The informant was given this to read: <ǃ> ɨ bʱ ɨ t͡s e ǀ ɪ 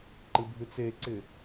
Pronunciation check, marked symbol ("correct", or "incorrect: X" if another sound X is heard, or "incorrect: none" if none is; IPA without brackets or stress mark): correct